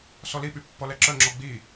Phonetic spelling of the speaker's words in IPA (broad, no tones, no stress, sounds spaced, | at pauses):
s ɔ l i ɓ y pː ɔ l ɛ ǁ œ ŋ͡ǁ ɔ ɡ͡b i